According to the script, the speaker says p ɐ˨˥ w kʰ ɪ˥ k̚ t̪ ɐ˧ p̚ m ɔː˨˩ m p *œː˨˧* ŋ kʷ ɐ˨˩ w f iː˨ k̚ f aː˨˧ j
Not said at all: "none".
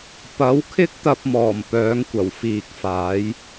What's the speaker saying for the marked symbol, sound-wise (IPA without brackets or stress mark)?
œː˨˧